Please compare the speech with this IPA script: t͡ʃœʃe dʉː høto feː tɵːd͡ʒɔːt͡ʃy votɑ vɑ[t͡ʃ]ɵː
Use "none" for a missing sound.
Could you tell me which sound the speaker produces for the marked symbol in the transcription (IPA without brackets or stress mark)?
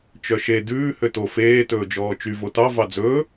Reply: d͡z